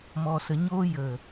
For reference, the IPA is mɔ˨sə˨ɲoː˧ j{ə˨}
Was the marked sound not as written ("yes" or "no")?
no